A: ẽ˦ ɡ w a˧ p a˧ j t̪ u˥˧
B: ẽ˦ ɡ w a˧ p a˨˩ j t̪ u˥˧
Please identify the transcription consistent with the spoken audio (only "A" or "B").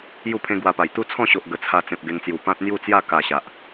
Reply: B